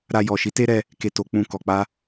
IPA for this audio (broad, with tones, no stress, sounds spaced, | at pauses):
ɾ a˧ j ɔ˨ ʃ i˨˦ t e˦ ɾ ɛ˧ | k e˧ t o˧ k͡p ũ˧ k ɔ˨ k͡p a˧